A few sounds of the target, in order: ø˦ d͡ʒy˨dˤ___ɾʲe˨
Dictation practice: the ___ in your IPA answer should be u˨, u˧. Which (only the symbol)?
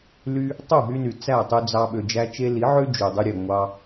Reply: u˧